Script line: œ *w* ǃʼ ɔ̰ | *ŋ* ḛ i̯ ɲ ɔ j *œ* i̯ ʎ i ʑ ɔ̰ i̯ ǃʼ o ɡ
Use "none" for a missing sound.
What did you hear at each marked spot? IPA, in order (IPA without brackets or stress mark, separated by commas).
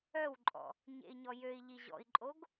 w, ɲ, ø